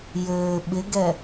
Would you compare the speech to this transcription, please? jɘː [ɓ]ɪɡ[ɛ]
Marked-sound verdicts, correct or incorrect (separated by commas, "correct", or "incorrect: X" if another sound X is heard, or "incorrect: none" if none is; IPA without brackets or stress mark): correct, correct